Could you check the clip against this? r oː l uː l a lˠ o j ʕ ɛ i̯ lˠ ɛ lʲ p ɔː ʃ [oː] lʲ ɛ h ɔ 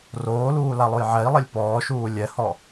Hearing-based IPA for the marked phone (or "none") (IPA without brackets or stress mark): uː